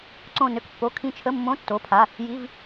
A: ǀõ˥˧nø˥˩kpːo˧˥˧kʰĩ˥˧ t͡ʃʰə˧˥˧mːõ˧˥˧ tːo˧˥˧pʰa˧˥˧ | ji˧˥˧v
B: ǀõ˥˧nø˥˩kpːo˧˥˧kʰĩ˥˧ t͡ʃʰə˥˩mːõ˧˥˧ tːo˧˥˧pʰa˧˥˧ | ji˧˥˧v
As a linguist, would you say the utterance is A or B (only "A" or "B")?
A